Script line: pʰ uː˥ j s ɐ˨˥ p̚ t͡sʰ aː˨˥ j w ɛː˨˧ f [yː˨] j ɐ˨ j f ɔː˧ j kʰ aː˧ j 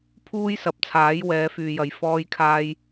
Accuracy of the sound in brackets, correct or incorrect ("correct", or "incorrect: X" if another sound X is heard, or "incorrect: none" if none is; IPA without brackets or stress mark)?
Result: correct